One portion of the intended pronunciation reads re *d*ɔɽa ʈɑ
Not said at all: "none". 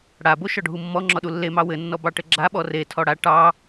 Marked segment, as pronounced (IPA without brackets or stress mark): tʰ